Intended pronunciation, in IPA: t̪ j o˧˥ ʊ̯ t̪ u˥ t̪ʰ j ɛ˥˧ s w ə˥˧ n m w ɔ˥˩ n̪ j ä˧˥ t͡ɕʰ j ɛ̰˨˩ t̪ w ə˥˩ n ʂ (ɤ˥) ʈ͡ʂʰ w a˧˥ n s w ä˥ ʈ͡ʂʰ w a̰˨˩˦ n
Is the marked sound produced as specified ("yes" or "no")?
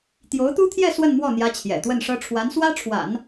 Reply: yes